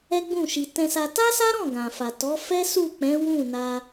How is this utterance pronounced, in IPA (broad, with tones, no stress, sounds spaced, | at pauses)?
ɛ˦ ɡ͡b ũ˦˨ ʃ i˨ t ɛ̃˧ s a˧ t a˦ s a˦ ɾ ɔ̃˦˨ ɡ ã˨ f a˨ t ɔ˨˦ f ɛ˦ s u˦˨ k͡p ɛ̃˨˦ w ũ˦˨ n a˧